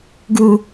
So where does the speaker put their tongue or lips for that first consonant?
velum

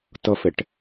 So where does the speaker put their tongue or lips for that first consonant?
tongue tip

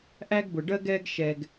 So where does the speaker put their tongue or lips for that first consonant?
throat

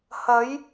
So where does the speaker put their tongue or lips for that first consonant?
throat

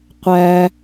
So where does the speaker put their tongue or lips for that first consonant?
uvula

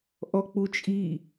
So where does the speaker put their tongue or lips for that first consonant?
throat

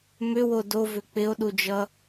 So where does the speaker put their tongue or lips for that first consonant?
lips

